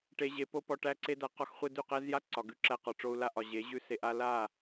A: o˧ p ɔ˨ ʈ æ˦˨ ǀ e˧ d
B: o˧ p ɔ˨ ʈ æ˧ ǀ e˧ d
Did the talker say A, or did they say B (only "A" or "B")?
B